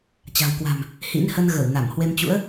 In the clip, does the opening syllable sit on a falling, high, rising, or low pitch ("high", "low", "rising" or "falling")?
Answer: low